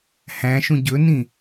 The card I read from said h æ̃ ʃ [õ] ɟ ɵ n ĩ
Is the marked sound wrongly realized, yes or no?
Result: yes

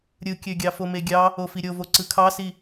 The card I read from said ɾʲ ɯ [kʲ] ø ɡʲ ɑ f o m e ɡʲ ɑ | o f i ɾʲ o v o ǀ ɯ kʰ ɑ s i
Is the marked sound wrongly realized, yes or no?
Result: no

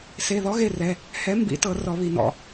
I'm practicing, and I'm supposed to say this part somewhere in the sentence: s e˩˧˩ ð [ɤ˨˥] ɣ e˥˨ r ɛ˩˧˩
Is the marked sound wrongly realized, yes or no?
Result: yes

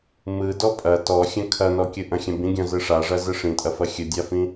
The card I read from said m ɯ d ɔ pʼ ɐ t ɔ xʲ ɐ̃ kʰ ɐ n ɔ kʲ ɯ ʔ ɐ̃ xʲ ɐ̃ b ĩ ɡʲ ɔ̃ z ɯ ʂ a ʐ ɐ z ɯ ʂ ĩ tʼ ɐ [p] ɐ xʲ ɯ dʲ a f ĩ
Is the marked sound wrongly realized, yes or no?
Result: yes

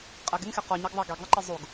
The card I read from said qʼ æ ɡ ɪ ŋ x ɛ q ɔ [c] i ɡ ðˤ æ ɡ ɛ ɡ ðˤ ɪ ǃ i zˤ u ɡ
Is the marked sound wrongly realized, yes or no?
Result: yes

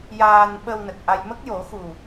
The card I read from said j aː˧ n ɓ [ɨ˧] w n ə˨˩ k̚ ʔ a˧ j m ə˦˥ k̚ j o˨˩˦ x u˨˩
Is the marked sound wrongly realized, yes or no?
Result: yes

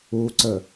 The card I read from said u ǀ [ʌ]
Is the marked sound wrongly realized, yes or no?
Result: yes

